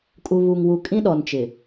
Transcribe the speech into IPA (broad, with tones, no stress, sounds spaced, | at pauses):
kʼ u˨ β u˨ ŋ w u˨ kʼ ĩ˦ ɗ ɔ˨ n t͡ʃ ɪ˨